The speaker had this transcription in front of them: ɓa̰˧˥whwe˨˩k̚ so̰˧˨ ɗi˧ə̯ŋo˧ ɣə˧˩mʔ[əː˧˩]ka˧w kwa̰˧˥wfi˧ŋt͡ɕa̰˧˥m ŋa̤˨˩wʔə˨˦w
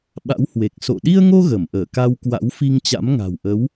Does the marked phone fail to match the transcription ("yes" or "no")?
no